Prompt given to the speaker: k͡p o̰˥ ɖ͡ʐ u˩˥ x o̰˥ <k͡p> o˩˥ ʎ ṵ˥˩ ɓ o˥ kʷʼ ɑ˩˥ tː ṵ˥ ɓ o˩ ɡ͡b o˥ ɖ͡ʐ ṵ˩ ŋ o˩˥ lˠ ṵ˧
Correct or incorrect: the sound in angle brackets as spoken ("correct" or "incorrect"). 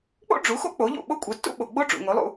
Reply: correct